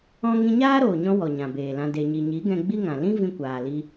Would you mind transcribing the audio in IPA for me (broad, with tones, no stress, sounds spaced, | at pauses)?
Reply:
ɔ̃˦ ŋ ĩ˧ ɲ aː˦ ɾ oː˨ ɲ ɔ̃˧ w ɔ˨ ɲ ã˨ b eː˨ l ã˧ d e˨ ɲ i˨ ɲ i˨˦ ɡ ɛ̃˧ ɡ͡b i˦ ŋ ã˨ l ĩ˦ v ĩ˧ kʷ aː˨ l i˧